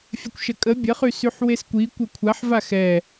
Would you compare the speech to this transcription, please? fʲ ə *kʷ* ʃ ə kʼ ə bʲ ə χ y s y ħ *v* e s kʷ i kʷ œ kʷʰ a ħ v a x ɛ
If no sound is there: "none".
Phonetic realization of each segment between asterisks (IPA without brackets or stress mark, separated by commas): kʷ, w